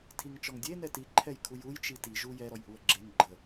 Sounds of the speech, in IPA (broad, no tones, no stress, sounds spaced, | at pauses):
tʰ i ŋ t͡ʃ ɔ ŋ dʲ e n ɛ t i ǃʰ ɛ j kʰ u j u j t͡ʃ i t i ʒ u j ɛ ɾ ɔ j ʔ u ə̯ ɡ͡ǁ e ŋ ɡ͡ǃ ə